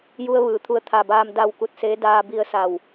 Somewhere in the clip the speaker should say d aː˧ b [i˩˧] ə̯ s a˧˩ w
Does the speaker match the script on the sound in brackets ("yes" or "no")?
no